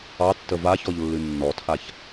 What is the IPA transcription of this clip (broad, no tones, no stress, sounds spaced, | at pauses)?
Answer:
ɑ tː ə v a ç ɔ ʎ lː ɨ nː ɔ tʰ a ç